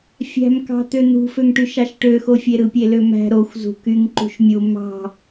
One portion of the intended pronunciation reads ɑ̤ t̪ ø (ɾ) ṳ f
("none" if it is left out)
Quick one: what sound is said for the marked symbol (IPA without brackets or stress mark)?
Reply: n̪